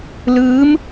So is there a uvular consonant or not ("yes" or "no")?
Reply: no